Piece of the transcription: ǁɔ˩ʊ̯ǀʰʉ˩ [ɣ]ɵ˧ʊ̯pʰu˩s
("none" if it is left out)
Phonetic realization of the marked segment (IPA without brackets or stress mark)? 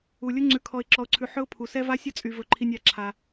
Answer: ħ